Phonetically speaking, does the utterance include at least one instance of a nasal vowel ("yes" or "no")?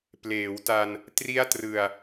no